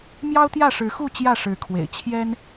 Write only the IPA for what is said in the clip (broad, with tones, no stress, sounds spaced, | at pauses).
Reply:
m j ɑ˦ ʊ̯ t̪ j ä˥˨ ʂ ɻ̩˨˦ x u˥˨ t͡ɕ j ä˥˨ ʂ ɻ̩˨˦ kʰ w ḛ˨˩ ɪ̯ t͡ɕʰ j ɛ˦ n